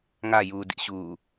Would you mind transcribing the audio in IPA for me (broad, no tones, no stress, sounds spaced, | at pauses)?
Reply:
ŋ a j uː d ḭ ɕ uː